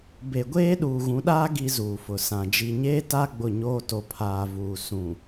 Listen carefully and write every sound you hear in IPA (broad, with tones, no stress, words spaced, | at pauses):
be˨ɡʷeː˦ ɗuː˨ɣũ˨˦ɗaː˦ ɡi˦zuː˨fʊ˨sã˨ d͡ʒi˨ɲeː˦ta˦ ɡ͡bʊ˦˨ɲoː˦ to˨pʰaː˨vuː˨ sũ˨